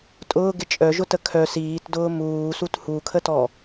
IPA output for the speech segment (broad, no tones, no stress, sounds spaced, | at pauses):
tʼ ʊː ɡ ɪ t͡ʃʼ œ ʒ ʊ t ə kʰ œ s iː t d ʊː m uː s u t h u kʰ ə t ɔ